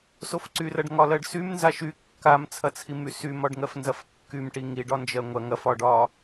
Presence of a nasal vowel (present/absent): absent